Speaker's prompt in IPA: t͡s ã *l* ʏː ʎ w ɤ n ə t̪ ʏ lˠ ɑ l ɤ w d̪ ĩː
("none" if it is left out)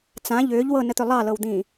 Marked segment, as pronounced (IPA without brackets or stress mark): ʎ